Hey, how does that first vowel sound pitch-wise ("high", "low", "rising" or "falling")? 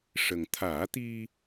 low